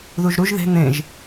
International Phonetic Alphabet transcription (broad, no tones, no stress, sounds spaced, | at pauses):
ð u ʒ ɾ u ʒ ð e̤ n̪ ẽ ʒ